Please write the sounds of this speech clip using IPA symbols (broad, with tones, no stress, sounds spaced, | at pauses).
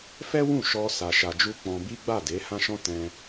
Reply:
f ɛ˦ w ũ˦˨ ʃ ɔ˧ s a˧ ʃ a˧ d͡ʒ u˦ k͡p ɔ̃˧ b i˦ ɡ͡b a˦˨ d e˨˦ h ã˦ ʃ ɔ̃˦ t ɛ̃˦